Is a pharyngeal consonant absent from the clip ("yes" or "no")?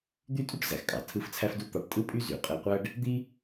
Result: yes